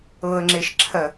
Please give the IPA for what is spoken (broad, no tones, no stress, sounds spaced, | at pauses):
ɤ ə̯ ŋ͡ǁ e ʃ ǁʰ ɜ